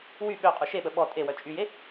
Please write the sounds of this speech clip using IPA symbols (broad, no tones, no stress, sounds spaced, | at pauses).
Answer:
w y ɓ ø qʼ u ʃ e ɓ ə ɓ ɔ tʼ e w œ t͡ʃʼ y j e